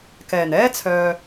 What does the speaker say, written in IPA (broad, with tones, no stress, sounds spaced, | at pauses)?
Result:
k ɛː˨˩ n ɛː˥ t͡sʰ œː˨